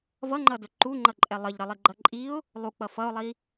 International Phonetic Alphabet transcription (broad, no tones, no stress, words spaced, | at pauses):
vʌŋ͡ǃʌdɵ ǃuŋ͡ǃʌǃʼɛ lˠəʎɾʌlˠiɡ͡ǃʌ ǃʼiʊ̯ | lˠuk͡pʌ fʌʊ̯lˠi